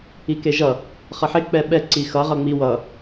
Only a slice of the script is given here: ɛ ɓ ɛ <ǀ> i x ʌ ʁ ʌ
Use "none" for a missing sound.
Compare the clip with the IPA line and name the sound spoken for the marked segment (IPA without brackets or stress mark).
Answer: ǀ